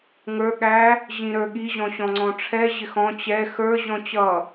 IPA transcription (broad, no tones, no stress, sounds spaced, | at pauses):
ŋ ə˞ ɠ æ | ʑ ĩ ɾ ə˞ ɠ i ʑ ɔ̃ ɕ ɔ̃ ŋ͡ǀ ɔ̃ ʈ͡ʂʰ ɛ ʑ ɪ x ɔ̃ t͡ɕ ɛ x ə˞ ʑ ɔ̃ t͡ɕ ʌ